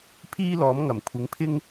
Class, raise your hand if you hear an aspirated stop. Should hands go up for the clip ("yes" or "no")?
yes